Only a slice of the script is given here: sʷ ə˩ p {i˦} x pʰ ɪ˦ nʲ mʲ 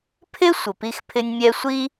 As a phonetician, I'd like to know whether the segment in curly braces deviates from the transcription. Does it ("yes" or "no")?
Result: no